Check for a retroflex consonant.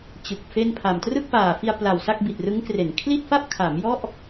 absent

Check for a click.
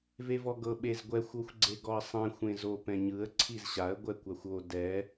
present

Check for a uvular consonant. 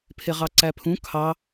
present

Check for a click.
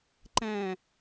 present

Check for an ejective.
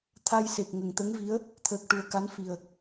absent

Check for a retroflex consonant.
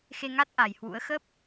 absent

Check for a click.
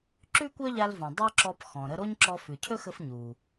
present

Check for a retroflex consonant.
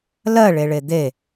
present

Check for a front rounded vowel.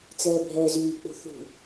present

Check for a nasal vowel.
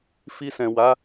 present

